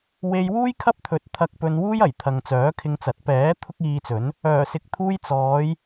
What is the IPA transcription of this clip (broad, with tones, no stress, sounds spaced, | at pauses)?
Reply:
w e˧ j w uː˥ j kʰ ɐ˥ p̚ t̪ʰ ɵ˨˥ t̚ t̪ʰ ɐ˧ k̚ p ɵ˧ n w uː˥ j ɐ˨˩ j t̪ʰ ɐ˨ ŋ t͡s œː˨˥ kʰ ɪ˧ ŋ t͡s ɐ˨˥ t̚ p ɛː˨˥ t̪ʰ ʊ˥ k̚ iː˧ t͡s ɵ˨˥ n | œː˨˩ s ɪ˨ k̚ t̪ʰ uː˧ j t͡s ɔː˨˧ j